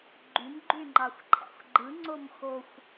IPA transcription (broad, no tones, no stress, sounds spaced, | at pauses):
ɡ͡ǃ y m ɡ͡ǃ y ŋ͡ǃ ɑ xʷ ǃʰ æ̰ xʷ ɡ͡ǃ ɯ ŋ͡ǀ o m x o xʷ